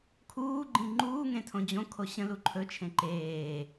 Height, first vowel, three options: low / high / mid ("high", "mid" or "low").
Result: high